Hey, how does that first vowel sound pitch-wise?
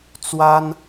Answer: high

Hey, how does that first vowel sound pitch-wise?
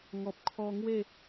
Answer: low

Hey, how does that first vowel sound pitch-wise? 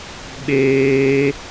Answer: high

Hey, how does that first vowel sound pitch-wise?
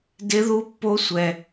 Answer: high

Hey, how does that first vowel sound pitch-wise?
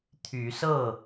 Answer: rising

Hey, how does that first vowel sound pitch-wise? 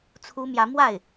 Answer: high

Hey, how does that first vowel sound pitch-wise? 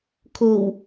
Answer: low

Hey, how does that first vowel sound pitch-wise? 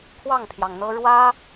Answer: falling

